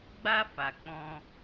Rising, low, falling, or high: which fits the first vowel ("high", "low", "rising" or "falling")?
high